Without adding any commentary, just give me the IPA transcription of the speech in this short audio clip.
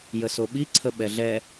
jəsoɓi ǀʰəɓɛɮɛ

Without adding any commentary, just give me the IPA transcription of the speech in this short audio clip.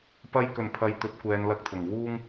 pɐ˧j kɵ˨˩npʰɐ˨j t̪ɵ˨˥t̚kʷɛː˨˧n lɐ˧k̚t̪ʰʊ˨˩ŋ wuː˥ŋ

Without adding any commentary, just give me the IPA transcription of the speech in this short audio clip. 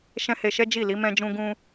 ʃɛ̃˦he˧ʃɛ˦ d͡ʒi˦˨li˨˦ mɛ̃˧d͡ʒũ˧ ɡũ˧

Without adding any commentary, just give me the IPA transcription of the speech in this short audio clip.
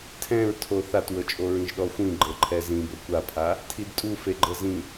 tʰɛ̃ɹtʰo θatwɤt͡ʃʼo ɹĩʒɗɔxʷĩ ɡ͡ǃɤǃʰɛzĩ bɤkʷapʰa | tʰidtʼu feɡ͡ǃɤzĩ

